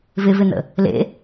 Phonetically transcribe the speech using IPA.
v ɪ v ɪ n ə̰ | l ḛ

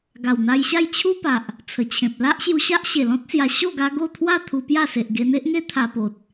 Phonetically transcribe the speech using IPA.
ɡ a˨˩ w n̪ a˧ j ɕ a˥˧ j t͡ɕʰ u˦ p a˨ ʔ | t͡sʰ ə˨˩ t͡ɕʰ ẽ˨ p̚ l a˦ ʔ ɕ j u˧ ɕ a˦ ʔ ɕ e˨˩ l ɔ̃˦ t̚ s j a˧ ɕ o˥˧ ɡ a˧ ɡ o˥˧ t̪ʰ w a˥˧ t̪ʰ u˧ p j a˥˧ s e˨ ʔ ɡ e˧ n̪ e˦ ʔ ŋ e˦ t̪ʰ a˧ p o˨ t̚

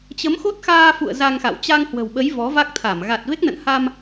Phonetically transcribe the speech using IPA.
t͡ɕ ə˨˦ m x o˦˥ t̚ x aː˧ f ṵ˧˨ ə̯ z a˧ ŋ x a̰˧˨ w t͡ɕ a˧ ŋ h w ə̤˨˩ w ɓ ə˨˦ j v ɔ˨˦ v a˦˥ k̚ t̪ʰ a˧˩ m ɣ a˨˩ t̚ v e˦˥ k̚ n ə̰˧˨ n h a˧ m

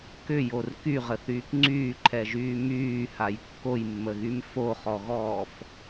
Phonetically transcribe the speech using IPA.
k ʏ j o r k y ʁ ə θ yː k ŋ͡ǀ yː ǃʰ ɛ ʒ yː m yː h a j kː o j mː ə ɣ y m f o χ ɔ ɣ ɔː f

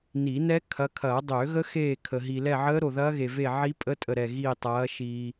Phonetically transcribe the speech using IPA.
n i˨˩˦ n ɛ˦˥ kʰ ɐ˨˦ kʰ ɐː˨˩˦ dˤ ø˨˩˦ ɣ ə˦˥ x eː˦˨ kʰ ə˨ ɦ i˨ l ɛ˦˨ ʕ əː˦˥ ɾ o˨ ð ɐː˦˥ ɣ e˨ v e˦˨ ʕ i˦˥ pʼ ə˦˥ tʼ ə˦˨ ɾ ɛ˦˨ ɣ iː˦˨ tˤ ɐː˨˦ ʃ iː˨

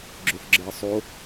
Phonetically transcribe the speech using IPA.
ɡ͡ǁ ø f ɡ͡ǁ əː sˤ o

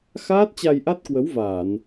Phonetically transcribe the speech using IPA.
x aː˦˥ t̚ t͡ɕ a˧ j ʔ a˦˥ t̚ k w ə˨˦ w v aː˧˩˨ n

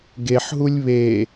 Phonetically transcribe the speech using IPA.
ɡ e ħ ɦ u lʲ β e

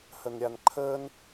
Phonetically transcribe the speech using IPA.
h ə n ɾʲ a n ǃʰ əː n

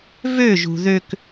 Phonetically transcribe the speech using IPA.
v ø ʒ ṳ ð ø k

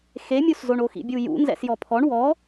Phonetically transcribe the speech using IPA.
x e mʲ u s z o ɳ o x ḭ bʲ u j ṵ n z ɛ̰ s j ɔ pʰ ɔ ɳ w ɔ

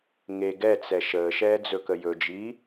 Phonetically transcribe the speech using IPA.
ŋ e ɡ ɛ t͡s ɛ ʃ əː ʃ ɛː d͡z ɵ k ə j ɵ d͡ʒ iː

